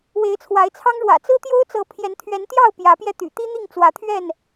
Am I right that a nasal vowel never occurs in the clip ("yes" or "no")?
yes